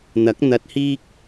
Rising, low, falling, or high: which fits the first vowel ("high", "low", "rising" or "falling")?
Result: rising